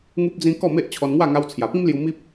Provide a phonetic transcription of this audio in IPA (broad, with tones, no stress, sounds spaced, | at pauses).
ŋ u˦ p̚ d͡z ĩ˦ k ɔ˥˧ m e˦ ʔ t͡ɕʰ ɔ˧ n ŋ w a˥˧ ŋ a˧ w t͡sʰ j a˨˩ p ĩ˦ m l j u˧ m i˦ p̚